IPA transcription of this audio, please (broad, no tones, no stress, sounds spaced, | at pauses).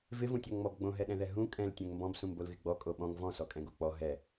v ɪ v ũ tʲ ɔ ŋ ŋ͡m ɔ b ɡ͡b õ ɦ ɛ ɗ ɛ̃ ð ɛ ɦ ũ kʼ ɛ̃ l tʲ õ ŋ m b ɔ̃ b s ũ m b o l ɣ ɪ ɡ͡b ɔ kʼ o ɓ ɔ̃ ŋ v ɔ̃ s ɔ kʼ ɛ̃ ɡ o k͡p ɔ ɦ ɛ